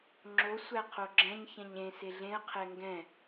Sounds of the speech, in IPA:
ŋ͡ǁ o sʷ æ qʰ o ɡ͡ǁ ɛ̃ ɲ ç ɛ̃ ɲ ẽ s e ɮ ẽ ə̯ qʰ ɛ ŋ ɡ ɛ̃

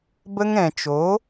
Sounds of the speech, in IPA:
b ə˦ ŋ ɛ̃˨ t͡ʃ o˨˦

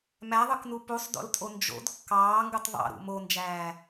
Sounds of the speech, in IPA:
m æ ðˤ ɯ k n u p u sˤ d o̰ l tʼ o n d͡ʒ o̰ d kː ɑː ŋ ɡ ɯ tˤ ðˤ ɑ̰ ɾ ṵ m o n d͡ʒ æː

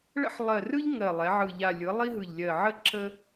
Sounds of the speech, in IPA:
ɭ ə̰˦ ħ lˠ ɜ˨˩ r ɯ˦ ʎ ŋ ɜ˨˩ lˠ ɛ˩˧ ʕ ɯ˨˩ ʎ a˨˩ lʲ ɯ˩˧ lˠ i˦ ɦ ɯ˨˩ ʎ lʲ ɜ˨˩ ʕ ə˦ ǁ ə˦

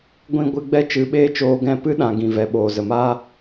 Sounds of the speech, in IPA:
ɡʷ ĩ˧ ɡʷ ɨ˧ ɡ͡b ɛ˦ t͡ʃ ɨ˨˦ ɓ eː˦ t͡ʃ oː˧ ɡ ɛ̃˦˨ p ɨ˦ ɗ ã˨ ɡ ĩ˨ v ɛ˨ ɓ oː˨ z ə˨ m aː˦

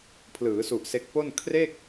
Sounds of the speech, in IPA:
pʰ l ɯː˩˦ s u˨˩ ʔ s e˦˥ k̚ p o˥˩ n kʰ r e˥˩ k̚

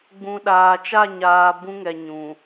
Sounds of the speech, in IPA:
ɡ͡b ũ˨ ɗ aː˨ t͡ʃ a˦˨ ɲ aː˨ b ũ˦ ŋ ɛ˨ ɲ ũ˨

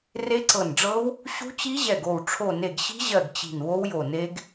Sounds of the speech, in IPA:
r e˦˥ ǀ ɤ˧˩ n ɖ͡ʐ ɤ˦˥ w | ɕ ṳ˦˥ t͡ɕ i˦˥ ʑ ɛ˧˩ ɡ o˧˩ w ʈ͡ʂʰ o˧˩ n e˧˩ ɡ ɕ i̤˦˥ ʑ ɜ˧˩ ɡ t͡ɕ i̤˧˩ n w o˦˥ w j o˧˩ n e˦˥ ɡ

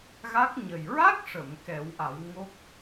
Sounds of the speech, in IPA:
ɣ a˦˥ k̚ ɲ ə˨˩ j ɹ a˦˥ k̚ ʂ ə˨˩˨ m k ɛ˨˩˦ w ʔ a˨˩˦ w ŋ o˦˥ k̚

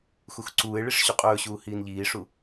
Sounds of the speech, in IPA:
x u x ǀ uː e̯ ɭ i ʂ ɕ u qʼ ɵː ɕ uː h iː n ʎ iː ʂ u

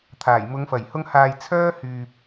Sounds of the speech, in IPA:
t̪ʰ aː˨˩ j m ʊ˨˧ ŋ f ɐ˨˩ j h ʊ˧ ŋ h aː˨ j t͡sʰ œː˥ h yː˨ p̚

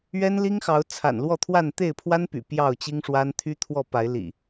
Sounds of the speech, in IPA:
ɥ ɛ˦ n l i˦ ŋ x ɑ˨˦ ʊ̯ t͡sʰ a̰˨˩ n l w ɔ˥˨ t̪ʰ w a˥˨ n t̪ e˥˨ ɪ̯ pʰ w a˦ n p y̰˨˩ p j ɑ˥˨ ʊ̯ t͡ɕ i˦ ŋ ʂ w a˦ n t̪ʰ y˦ t̪ʰ w ɔ˥˨ p a˨˦ ɪ̯ l ḭ˨˩

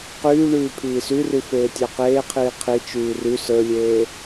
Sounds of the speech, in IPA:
q yː ɳ yː pʰ iː s y r y f eː tʲ ə˞ q eː qʰ iː qʰ i t͡ʃ yː r y s ə˞ lʲ eː

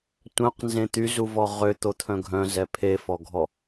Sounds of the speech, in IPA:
tʷ œ̃ q n z ẽ t̪ y z u v ɔ ʁ ø t̪ o t̪ʰ œ̃ ɡʱ œ̃ z ɛ pʰ e f ɔ ɡʱ ɔ

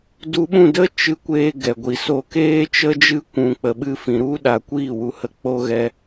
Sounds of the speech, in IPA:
d u˧ ɓ ũ˦˨ d ə˦ t͡ʃ ɨ˧ kʷ eː˧ ɡ ɛ˨ ɡʷ i˨ s o˧ k eː˦ t͡ʃ ə˦ d͡ʒ ɨ˦ kʷ ũ˧ k͡p ə˧ ɓ ɨ˦ f ĩ˧ ɾ u˦ ɗ a˧ kʷ iː˦˨ w u˧ h ə˦ k͡p o˦ ɣ ɛ˦

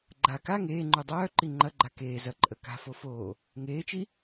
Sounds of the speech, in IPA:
ɡ͡ǃ a k a ŋ eː ŋ͡ǃ u dˤ œː ǃ i ŋ͡ǃ ɐ ɡ͡ǃ a k eː z ɐ ǃʼ ə k a̤ f o f oː | ŋ eː t͡ʃ i

